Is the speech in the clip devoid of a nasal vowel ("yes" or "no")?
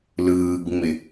yes